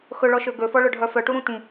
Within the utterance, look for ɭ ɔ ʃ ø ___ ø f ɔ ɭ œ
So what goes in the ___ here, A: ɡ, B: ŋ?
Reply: A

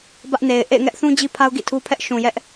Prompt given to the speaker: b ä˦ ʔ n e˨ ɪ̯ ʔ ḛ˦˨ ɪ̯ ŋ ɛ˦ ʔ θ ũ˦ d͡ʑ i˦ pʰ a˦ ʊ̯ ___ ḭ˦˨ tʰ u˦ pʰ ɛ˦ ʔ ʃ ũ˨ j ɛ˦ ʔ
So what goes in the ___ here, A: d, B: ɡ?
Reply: B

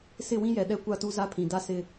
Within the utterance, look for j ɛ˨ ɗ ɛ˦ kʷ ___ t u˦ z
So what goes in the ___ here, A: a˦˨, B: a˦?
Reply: A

